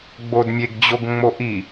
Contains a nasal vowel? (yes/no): no